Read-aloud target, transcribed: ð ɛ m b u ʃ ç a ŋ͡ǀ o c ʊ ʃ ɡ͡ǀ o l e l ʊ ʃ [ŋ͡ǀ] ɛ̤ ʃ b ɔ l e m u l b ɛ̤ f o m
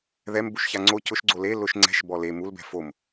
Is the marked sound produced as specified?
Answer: yes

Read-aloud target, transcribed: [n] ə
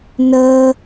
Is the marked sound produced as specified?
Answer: yes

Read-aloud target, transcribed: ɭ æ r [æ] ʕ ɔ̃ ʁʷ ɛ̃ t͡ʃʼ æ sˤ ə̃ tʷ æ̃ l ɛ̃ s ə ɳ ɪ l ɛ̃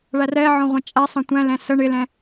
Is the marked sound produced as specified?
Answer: no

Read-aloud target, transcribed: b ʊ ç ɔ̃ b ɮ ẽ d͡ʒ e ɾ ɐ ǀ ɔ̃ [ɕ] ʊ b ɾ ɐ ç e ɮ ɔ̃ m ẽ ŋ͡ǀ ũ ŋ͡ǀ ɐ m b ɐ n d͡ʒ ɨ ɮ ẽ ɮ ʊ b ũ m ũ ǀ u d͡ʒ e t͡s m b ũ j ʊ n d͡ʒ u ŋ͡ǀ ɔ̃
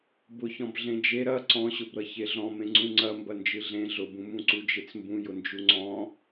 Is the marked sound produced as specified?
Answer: yes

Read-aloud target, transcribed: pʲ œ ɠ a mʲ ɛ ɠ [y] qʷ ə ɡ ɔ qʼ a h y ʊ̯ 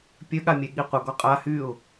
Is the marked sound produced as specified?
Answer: no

